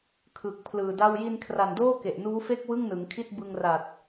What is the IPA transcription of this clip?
kʰ ɯ˨˩ k̚ pʰ l ɯː˨˩ d a˥˩ w j i˧ n kʰ r a˨˩ n d oː˥˩ k e˨˩ ʔ n uː˦˥ f e˥˩ k̚ w ɯ˥˩ ŋ n ɯ˩˦ ŋ kʰ i˥˩ t̚ b ɯ˧ ŋ r a˨˩ t̚

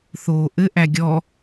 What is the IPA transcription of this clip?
θ oː ʔ ɘ ʔ æ ɡʲ ɔ

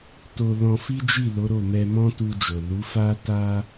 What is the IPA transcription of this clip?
t o˧ l ɔ̃˧ f i˦ d͡ʒ i˦˨ l o˨˦ ɾ o˦˨ m ɛ˧ m ɔ̃˦ t u˧ d͡ʒ o˨ l u˨˦ f a˦ t a˦

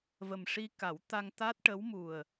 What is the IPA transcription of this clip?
v ə˨˩ m ʂ i˧ k a˨˩˦ w t̪ a˧ ŋ t̪ a˦˥ t̚ ʈ ə˧˥ w m u˨˩ ə̯

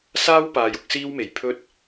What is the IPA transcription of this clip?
s aː˥ w p aː˨ j ʊ˧ k̚ s iː˥ w m e˨˩ j pʰ ɵ˥ t̚

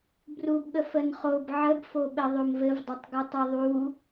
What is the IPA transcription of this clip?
b r u b ɠ ə f ə n χ o b ʕ ə b f o ɓ ɘ ðˤ o m v ɘ v dˤ ʌ tˤ ɡ ɘ tˤ u ðˤ u

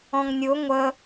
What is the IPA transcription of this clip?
ɔ̃ ŋ nʲ ʊ ŋʷ ə

